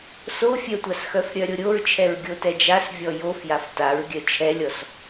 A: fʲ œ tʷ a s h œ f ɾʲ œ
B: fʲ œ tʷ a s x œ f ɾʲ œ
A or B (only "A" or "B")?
B